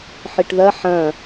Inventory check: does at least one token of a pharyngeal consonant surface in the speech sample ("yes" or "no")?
yes